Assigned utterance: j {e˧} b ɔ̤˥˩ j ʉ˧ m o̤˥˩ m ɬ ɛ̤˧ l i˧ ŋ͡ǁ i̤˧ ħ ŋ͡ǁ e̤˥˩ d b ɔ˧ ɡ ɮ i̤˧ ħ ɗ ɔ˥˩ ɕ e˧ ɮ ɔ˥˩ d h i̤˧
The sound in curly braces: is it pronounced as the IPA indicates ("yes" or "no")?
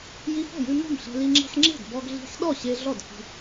no